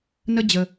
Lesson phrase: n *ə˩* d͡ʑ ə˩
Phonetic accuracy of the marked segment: incorrect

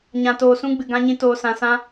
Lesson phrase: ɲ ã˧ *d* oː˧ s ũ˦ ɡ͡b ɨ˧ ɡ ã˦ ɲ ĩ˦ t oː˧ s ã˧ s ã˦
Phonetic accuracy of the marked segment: incorrect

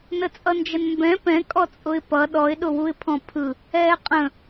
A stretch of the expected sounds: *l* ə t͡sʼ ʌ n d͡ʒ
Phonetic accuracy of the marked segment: incorrect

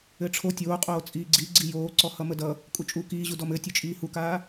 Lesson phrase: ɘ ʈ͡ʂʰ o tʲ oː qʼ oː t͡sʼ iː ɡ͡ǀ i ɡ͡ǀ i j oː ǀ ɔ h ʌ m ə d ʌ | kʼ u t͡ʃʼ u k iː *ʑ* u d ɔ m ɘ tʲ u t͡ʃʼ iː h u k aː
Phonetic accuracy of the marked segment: correct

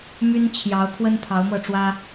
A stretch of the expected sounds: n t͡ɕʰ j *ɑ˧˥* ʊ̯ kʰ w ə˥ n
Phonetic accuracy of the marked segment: correct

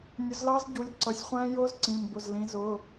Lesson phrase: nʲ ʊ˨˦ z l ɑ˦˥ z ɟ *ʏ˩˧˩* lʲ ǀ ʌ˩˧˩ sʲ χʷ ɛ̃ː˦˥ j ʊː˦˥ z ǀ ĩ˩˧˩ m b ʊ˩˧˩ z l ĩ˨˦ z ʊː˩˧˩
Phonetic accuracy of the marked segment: incorrect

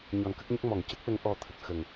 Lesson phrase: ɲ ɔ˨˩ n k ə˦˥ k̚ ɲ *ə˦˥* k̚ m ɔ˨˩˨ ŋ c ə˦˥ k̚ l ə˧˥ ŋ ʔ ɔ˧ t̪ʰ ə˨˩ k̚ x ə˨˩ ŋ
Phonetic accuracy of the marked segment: correct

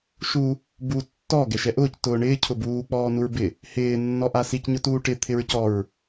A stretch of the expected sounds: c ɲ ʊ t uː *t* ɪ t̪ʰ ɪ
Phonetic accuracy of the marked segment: incorrect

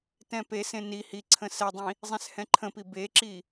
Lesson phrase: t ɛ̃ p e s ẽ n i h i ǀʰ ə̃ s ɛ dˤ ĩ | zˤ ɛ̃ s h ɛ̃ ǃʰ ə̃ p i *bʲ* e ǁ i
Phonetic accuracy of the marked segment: incorrect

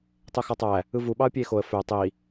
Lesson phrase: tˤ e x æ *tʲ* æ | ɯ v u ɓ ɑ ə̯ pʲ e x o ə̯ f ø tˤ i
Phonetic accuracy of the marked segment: incorrect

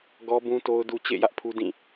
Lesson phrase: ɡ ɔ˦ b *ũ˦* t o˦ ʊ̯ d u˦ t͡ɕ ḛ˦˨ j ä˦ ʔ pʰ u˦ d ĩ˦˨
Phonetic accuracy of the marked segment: correct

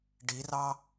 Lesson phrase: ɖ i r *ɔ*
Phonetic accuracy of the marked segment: incorrect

